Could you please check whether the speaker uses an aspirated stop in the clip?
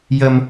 no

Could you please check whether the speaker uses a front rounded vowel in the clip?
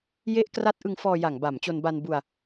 no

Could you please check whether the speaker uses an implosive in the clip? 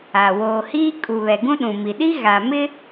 yes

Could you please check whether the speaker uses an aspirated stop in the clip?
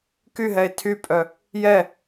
yes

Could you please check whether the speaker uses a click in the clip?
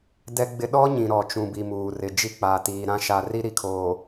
no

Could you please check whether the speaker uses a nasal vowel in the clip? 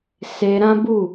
yes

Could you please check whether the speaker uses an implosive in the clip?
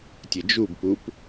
no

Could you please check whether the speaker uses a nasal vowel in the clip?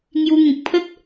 yes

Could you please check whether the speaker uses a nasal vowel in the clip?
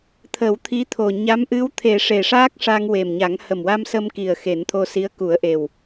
no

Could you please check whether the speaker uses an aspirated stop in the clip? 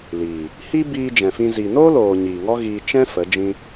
no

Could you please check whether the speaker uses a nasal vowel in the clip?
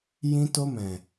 yes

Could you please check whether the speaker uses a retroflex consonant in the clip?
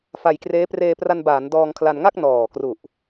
no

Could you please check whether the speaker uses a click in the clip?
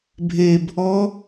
no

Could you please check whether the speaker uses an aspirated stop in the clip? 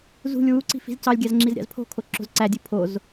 yes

